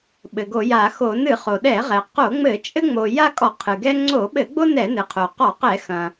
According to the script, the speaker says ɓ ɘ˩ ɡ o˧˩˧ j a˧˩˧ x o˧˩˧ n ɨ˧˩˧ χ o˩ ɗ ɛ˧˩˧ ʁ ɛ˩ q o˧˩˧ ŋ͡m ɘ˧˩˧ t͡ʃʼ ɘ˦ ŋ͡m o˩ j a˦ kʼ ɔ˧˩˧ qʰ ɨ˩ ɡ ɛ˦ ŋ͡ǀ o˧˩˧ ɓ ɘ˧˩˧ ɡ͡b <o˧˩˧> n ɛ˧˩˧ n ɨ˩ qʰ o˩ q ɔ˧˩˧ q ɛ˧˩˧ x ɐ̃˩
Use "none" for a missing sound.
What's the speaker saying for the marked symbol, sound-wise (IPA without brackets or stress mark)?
o˦